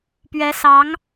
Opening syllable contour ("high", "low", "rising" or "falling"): rising